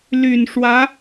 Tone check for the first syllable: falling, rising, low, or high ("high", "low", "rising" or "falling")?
low